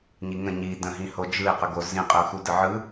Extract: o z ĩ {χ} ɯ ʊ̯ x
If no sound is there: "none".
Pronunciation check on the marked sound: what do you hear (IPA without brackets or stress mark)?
qʼ